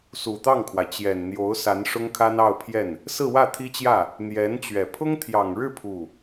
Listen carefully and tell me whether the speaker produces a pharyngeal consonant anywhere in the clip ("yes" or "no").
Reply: no